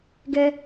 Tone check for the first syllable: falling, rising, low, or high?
high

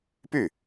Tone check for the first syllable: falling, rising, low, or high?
falling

